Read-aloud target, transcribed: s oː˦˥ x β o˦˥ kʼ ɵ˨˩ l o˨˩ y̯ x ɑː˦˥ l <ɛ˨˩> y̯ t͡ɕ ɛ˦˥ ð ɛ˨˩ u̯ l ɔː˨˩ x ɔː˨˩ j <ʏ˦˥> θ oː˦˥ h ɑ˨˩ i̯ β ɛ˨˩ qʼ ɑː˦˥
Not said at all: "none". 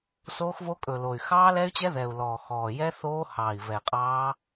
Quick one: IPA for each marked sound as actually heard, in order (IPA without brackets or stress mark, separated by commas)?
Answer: ɛ˦˥, ɛ˦˥